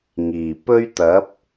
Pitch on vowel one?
low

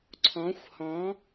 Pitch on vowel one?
rising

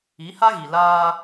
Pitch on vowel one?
rising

